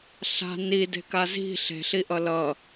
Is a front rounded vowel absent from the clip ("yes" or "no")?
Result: yes